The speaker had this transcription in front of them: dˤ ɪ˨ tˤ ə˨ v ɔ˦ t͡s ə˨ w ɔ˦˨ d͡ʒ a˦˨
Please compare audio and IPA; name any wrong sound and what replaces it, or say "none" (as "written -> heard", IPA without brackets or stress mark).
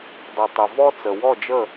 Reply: a˦˨ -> ə˦˨